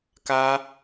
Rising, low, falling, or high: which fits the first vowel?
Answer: high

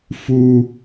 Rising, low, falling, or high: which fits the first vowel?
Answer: high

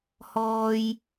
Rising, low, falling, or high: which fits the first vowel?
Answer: high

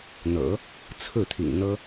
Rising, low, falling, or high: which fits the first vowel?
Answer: low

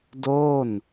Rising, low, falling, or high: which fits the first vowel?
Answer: falling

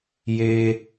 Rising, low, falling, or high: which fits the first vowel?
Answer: high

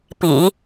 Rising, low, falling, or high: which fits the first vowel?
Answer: low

